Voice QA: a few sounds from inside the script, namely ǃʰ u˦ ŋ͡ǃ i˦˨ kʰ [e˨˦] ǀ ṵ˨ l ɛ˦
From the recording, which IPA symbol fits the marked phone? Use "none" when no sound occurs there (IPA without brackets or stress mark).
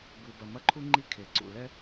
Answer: e˨